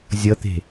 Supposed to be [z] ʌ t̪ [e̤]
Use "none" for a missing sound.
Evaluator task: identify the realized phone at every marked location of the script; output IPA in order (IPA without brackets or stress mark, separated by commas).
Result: zʲ, e̤